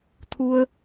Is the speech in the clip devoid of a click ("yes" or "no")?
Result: yes